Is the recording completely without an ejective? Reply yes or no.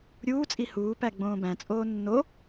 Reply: no